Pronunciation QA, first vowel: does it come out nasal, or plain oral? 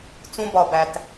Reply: nasal